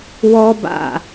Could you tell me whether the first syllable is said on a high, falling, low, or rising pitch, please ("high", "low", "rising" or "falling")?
high